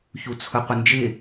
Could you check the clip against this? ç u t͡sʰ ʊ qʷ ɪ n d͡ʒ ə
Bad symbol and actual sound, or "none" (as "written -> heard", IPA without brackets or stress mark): ə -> ɪ